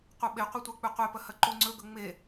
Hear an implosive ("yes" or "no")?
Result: yes